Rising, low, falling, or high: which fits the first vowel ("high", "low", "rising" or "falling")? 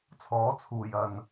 rising